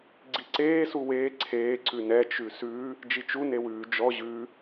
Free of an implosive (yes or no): yes